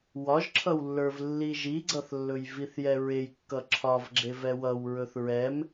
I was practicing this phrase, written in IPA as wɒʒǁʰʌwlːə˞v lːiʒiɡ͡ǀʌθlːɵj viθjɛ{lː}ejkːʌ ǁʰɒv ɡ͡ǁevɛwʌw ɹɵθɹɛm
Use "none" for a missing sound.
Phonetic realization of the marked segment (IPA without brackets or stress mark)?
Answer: ɹ